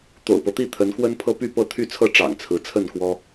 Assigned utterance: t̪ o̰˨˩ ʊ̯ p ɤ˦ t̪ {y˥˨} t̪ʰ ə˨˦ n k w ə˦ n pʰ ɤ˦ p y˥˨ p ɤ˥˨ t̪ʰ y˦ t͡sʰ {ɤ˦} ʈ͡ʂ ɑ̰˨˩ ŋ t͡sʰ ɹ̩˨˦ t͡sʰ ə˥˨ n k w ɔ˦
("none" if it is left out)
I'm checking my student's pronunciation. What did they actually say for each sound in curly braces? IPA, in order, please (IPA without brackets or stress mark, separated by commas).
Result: i˥˨, ɤ˥˨